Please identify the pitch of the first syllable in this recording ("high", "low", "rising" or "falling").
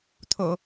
low